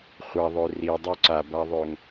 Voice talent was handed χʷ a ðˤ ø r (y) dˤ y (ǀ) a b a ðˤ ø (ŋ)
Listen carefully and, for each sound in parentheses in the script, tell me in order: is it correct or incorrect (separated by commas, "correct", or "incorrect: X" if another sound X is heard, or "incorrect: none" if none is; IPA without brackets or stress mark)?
incorrect: i, correct, correct